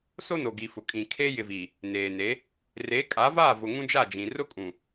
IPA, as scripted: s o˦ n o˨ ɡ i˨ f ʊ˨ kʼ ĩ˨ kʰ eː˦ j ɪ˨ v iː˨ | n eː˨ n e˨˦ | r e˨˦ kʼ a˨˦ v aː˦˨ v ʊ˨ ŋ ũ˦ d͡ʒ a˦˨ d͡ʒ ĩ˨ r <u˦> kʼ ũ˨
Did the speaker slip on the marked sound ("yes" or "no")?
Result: yes